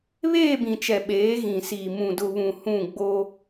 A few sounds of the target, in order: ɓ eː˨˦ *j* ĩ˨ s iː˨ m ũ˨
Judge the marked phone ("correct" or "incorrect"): incorrect